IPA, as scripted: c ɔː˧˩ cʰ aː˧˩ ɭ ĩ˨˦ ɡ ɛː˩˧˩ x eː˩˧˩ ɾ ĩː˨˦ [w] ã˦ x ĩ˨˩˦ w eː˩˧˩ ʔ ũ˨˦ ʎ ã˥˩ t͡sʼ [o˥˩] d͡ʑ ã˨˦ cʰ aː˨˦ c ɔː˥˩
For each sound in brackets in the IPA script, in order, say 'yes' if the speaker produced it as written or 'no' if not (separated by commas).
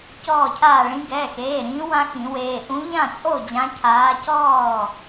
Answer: yes, yes